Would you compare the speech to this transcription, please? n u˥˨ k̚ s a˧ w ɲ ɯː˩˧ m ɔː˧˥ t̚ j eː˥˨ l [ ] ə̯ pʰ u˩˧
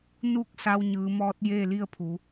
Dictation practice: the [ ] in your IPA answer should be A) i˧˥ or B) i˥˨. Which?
B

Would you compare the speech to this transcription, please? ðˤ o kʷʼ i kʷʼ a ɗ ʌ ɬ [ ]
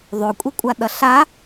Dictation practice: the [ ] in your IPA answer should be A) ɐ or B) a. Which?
B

